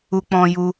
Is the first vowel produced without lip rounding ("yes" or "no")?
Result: no